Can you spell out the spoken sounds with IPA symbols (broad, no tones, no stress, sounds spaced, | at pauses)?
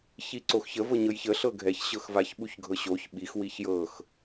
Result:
ç i ǀ o x ç ə v ɤ ɲ ɤ j ç ə ɬ ɤ ɡʱ ɛ ç ɕ ɤ x v a ç ɓ u ç ɡʱ ɤ ɕ o ç ɓ i x w i ç j ɤ x